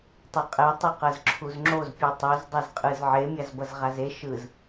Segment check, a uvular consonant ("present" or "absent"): present